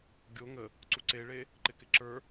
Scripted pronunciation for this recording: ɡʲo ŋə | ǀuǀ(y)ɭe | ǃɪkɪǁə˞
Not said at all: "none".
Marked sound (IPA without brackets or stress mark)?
e